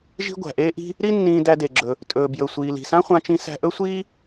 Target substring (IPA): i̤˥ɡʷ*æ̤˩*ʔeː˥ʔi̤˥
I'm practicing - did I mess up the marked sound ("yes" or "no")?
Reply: no